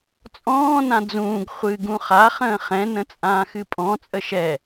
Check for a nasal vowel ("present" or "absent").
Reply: present